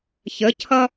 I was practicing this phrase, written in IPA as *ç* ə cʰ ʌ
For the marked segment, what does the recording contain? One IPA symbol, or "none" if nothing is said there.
ç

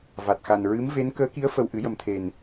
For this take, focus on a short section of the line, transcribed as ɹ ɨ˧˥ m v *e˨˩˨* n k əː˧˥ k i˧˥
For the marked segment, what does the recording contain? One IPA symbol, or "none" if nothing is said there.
e˧˥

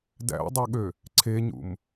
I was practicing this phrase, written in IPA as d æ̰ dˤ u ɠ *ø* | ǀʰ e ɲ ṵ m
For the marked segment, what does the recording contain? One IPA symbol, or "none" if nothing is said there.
ø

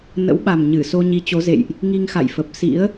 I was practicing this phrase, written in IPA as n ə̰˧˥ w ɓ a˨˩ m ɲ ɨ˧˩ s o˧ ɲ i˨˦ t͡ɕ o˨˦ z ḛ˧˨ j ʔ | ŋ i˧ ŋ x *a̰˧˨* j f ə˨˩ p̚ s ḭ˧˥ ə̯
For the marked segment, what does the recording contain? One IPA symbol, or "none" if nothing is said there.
a̰˧˨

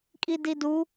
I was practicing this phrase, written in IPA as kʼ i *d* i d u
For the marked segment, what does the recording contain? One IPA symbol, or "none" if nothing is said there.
d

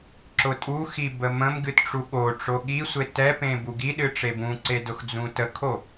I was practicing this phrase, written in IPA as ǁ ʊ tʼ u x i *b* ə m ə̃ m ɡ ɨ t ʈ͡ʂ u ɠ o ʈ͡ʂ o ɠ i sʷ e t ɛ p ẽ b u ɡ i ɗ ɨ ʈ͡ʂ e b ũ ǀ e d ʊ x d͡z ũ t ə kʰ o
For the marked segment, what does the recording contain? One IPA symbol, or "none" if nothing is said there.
b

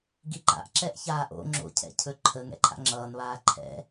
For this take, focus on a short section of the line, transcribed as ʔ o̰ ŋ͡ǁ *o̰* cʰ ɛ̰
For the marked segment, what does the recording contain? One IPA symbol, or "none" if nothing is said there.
o̰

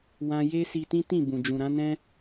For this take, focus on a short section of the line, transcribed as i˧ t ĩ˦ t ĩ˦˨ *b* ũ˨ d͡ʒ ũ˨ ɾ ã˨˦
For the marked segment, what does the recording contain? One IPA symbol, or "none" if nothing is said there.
b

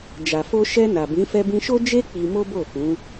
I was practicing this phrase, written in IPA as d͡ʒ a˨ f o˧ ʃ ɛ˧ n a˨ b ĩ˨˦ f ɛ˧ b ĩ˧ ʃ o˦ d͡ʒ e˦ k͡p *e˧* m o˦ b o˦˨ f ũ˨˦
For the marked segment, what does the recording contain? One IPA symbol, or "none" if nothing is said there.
i˧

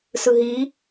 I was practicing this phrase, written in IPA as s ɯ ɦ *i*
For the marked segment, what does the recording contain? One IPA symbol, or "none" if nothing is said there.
i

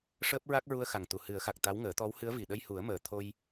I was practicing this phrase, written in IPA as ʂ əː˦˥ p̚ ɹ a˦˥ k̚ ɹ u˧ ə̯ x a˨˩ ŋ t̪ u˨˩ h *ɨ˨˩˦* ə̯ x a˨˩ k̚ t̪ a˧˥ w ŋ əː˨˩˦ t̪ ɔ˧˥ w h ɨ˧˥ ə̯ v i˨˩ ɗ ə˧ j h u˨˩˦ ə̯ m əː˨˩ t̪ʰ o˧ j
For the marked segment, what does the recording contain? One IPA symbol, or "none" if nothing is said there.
ɨ˨˩˦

